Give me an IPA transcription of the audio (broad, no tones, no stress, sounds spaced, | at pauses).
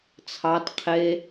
t͡sʰ ɑ t qʰ e